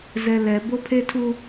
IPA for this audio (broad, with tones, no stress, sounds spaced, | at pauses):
z ɛ˨ l ɛ˨ b o˦ pʰ e˦ tʰ u˦